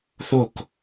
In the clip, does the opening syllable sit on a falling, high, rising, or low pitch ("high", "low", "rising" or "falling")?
falling